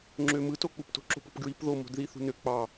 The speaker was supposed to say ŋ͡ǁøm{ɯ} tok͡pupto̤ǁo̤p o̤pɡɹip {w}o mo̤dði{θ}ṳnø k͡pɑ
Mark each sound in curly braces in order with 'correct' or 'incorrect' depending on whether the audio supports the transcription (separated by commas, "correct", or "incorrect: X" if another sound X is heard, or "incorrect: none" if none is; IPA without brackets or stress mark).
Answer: correct, incorrect: ð, correct